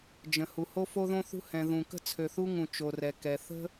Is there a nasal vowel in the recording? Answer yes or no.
yes